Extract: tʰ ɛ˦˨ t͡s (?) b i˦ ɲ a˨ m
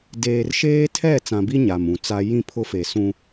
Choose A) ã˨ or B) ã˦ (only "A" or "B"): A